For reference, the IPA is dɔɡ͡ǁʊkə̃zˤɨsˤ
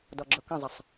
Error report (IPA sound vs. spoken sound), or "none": ɨ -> ə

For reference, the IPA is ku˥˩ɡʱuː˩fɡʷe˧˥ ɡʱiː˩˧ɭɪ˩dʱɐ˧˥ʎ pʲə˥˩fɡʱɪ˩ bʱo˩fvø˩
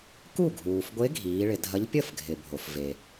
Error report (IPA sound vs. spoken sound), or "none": ø˩ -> e˩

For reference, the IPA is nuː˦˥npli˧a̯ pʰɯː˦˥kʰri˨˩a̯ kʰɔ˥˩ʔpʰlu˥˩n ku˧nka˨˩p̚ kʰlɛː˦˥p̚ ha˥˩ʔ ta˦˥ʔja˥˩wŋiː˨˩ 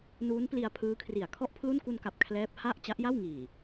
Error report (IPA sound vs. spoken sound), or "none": t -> t͡ɕ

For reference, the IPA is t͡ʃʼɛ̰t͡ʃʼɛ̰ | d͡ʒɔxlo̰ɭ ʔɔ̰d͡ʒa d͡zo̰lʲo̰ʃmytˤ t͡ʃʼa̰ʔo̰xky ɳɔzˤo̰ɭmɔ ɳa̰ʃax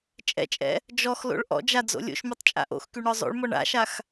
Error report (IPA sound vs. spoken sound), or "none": none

